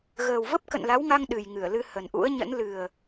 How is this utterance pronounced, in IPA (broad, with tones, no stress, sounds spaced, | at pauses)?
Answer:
ɣ əː˨˩ w v ə˦˥ p̚ k ə̰˧˨ n l a˨˦ w ŋ a˧ ŋ ɗ ɨ˨˩ j ŋ ɨ˧˩ ə̯ l ɨ˧ h ə˨˩ n ʔ ṵ˧˥ ə̯ ɲ ə̰˧˥ n l ɨ˨˩ ə̯